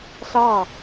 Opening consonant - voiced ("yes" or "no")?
no